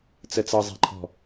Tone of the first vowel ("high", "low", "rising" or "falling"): low